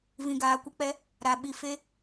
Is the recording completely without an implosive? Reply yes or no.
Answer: no